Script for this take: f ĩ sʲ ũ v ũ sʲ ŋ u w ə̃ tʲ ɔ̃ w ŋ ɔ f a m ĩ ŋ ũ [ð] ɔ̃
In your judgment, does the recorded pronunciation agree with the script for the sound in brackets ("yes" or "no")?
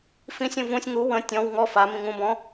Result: no